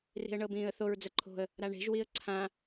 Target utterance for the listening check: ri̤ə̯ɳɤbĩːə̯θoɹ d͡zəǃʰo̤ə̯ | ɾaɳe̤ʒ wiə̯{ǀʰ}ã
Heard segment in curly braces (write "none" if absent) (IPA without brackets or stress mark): ǀʰ